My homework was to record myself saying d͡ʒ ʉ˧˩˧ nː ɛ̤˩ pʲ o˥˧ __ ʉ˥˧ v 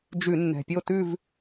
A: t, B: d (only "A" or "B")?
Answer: A